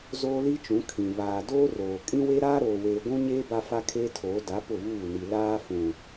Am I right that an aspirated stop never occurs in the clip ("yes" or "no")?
no